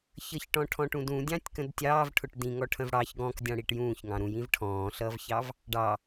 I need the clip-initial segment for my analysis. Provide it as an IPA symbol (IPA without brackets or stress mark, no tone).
ç